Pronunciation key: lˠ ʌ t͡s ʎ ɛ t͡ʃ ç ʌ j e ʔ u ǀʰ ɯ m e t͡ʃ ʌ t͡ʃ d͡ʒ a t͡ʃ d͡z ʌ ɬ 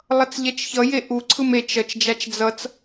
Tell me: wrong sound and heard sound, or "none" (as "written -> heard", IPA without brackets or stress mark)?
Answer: ɬ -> t͡s